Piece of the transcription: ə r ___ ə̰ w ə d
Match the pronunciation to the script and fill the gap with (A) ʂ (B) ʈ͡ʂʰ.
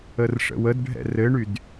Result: A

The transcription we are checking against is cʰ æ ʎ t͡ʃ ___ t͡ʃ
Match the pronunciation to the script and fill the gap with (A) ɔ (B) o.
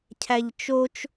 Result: B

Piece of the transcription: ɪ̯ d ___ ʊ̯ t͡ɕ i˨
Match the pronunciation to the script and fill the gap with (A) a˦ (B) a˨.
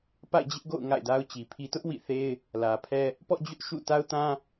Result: A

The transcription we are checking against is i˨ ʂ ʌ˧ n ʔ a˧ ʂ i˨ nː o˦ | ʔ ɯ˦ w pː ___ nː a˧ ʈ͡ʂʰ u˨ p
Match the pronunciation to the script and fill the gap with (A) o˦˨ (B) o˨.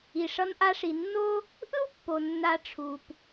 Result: B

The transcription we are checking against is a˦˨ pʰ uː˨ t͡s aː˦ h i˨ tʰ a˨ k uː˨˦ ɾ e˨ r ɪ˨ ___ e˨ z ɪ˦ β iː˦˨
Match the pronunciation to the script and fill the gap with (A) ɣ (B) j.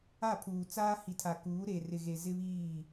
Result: A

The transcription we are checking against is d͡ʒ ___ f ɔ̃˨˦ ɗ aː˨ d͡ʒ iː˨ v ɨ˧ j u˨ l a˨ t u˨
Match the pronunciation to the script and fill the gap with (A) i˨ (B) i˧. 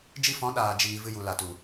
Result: B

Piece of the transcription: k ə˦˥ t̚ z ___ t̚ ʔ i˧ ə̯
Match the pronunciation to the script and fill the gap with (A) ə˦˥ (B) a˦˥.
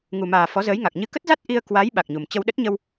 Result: B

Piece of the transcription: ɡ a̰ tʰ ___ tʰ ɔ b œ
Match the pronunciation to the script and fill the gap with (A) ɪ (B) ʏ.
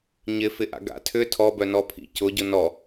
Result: B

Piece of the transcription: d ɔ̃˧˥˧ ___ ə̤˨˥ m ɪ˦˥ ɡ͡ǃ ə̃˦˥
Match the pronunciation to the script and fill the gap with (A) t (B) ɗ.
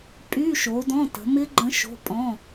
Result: A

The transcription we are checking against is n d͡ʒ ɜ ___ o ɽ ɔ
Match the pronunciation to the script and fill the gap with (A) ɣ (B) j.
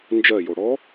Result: B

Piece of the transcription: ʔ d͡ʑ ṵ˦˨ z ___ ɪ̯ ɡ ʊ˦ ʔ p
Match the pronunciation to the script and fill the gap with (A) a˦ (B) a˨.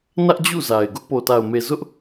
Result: B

